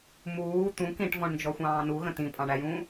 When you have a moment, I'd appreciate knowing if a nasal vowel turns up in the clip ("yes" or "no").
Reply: yes